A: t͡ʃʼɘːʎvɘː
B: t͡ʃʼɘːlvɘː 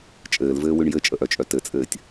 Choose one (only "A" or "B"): B